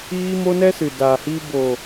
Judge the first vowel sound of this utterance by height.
high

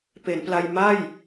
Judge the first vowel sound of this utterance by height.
mid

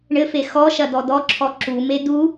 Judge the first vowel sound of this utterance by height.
mid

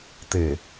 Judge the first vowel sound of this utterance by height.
mid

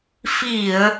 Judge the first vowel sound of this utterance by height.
high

